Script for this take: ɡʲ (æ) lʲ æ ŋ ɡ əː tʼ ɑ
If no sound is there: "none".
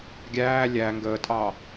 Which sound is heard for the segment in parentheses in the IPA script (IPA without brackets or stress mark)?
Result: æː